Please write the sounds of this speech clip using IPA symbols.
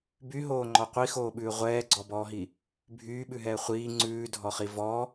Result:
b y ɦ oː ŋ͡ǃ ɔ qʷ i x oː ɓ ʉː ʁʷ ɛː ɡ͡ǀ ɔ b ɔː ɦ i | bʱ yː ɓ ʉ ɦ ɛː χʷ iː ŋ͡ǀ ʉː dʱ ɔ χ i v ɔ

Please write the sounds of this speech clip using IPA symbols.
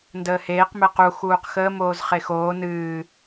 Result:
n d əː h eː q m ɛ q u x uː q x əː m oː z χ e x oː n ɨː

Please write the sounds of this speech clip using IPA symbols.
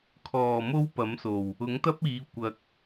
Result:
kʰ ɔː˨˩ m o˥ w p ɐ˨˥ m s o˨˩ w | ʊ˨˥ ŋ t̪ ɐ˥ p̚ iː˨˧ kʷ ɐ˨ k̚

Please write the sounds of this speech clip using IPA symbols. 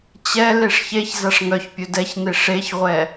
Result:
t͡ɕ ɛ l e ʂ ç e ç z a ʂ ŋ œ ç pʲ ɵ d ɛ ç n e ʂ e ç ʁʷ ɛ

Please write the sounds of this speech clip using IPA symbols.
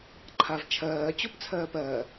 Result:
ǃʰ a v t͡ʃʰ ɜː t͡ɕ o p t͡sʰ ɜː p ɜ

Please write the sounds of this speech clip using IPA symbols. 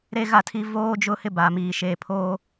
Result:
ɾ e˦ ɣ a˦˨ tʰ i˦ v oː˦ d͡ʒ ʊ˦ h ɪ˦ b a˨ m iː˨ ʃ eː˨ pʰ oː˦

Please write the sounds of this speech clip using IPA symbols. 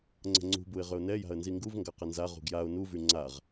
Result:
ŋ͡ǀ ə̤ ŋ͡ǀ ṳ b u ɪ̯ ʁ ʏ ʊ̯ n ɛ j a̤ ə̯ n z i ŋ ɡ u v ŋ ɡ a q ə n z a ʁ ṳ ɡ j a ʊ̯ n u v y ŋ͡ǀ a ʁ

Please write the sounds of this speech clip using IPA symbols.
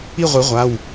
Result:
i˥˧ ʁʷ i˨˩˦ ʁʷ a˩˧˩ w

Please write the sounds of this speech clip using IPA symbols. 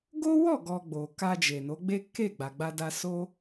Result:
ɡ o˦ w ɔ˦˨ ɡ ɔ˨ ɡ͡b o˨ k a˧ d͡ʒ e˨ n o˨˦ ɡ͡b e˦ k e˦˨ ɡ͡b a˨ ɡ͡b a˧ d a˧ s o˦

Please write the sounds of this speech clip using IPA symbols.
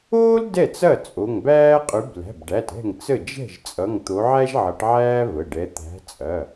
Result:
oː˥ l d ɛ˥˩ t͡s ɐ˥˩ t͡sʼ o˩˧˩ ŋ b æː˥ qʼ ʉ˨˦ b l æ̤˩˧˩ b ɖ æ˩˧˩ t ɛ̤˥˩ ŋ t͡s ə˥˩ d͡ʒ ɛ̤˥˩ ʒ t͡sʼ ʌ˩˧˩ ŋ t̪ o˨˦ ʕ æ˥ ʒ ʕ ʌ˨˦ ʈ ʕ æː˥ v ə˩˧˩ ɖ ɛ˨˦ t̪ æ̤˨˦ t͡sʼ ɐ˩˧˩

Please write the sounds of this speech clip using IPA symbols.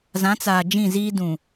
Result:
z ã˨˦ t͡s aː˨ d͡ʒ ĩ˦˨ z iː˦ d ũ˨

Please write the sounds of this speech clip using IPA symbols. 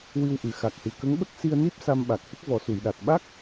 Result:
w ɨ˧ w ʔ ɨ˨˩ x a˨˩ k̚ h ɨ˨˩ k ə˧˥ ŋ ɓ ə˦˥ k̚ s i˧ ə̯ n i˦˥ p̚ s a˧ m ɓ a˨˩ k̚ h ə˦˥ k̚ v ɔ˨˩˦ s u˨˩˨ j ɗ a˨˩ t̚ ɓ a˦˥ k̚

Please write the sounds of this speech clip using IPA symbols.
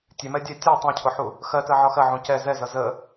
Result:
tʲ ɛ m ɛ dʲ ɛ tʲ ɛ tˤ æ̃ cʰ ʊ ħ u | x ɜ t ɜ ʕ ɒ x ɜ ʕ ũ c ɛ z ɛ z ʌ z ə

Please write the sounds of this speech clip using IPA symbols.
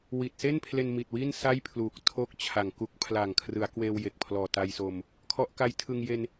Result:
w i˨˩ t̚ s e˥˩ n pʰ l e˧ n m i˨˩ t̚ w i˥˩ n s a˥˩ j pʰ l uː˨˩ k̚ tʰ o˥˩ k̚ t͡ɕʰ a˨˩ ŋ k u˦˥ k̚ pʰ l a˨˩ ŋ kʰ r ɯ˩˦ a̯ k w eː˧ w j e˨˩ k̚ pʰ l ɔː˨˩ t a˧ j s o˧ m | kʰ ɔ˦˥ ʔ k a˦˥ j tʰ ɯ˧ ŋ j e˧ n

